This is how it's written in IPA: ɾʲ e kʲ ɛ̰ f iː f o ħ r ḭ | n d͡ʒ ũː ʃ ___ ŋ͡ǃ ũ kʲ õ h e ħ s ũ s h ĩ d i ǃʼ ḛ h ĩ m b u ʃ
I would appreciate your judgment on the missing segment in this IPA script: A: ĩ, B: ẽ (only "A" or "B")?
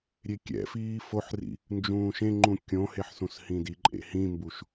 B